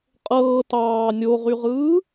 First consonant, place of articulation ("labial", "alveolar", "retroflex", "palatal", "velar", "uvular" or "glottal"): uvular